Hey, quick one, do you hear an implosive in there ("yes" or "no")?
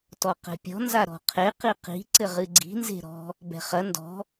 no